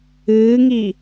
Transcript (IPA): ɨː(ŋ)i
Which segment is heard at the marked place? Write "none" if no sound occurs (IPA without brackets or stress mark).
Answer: ŋ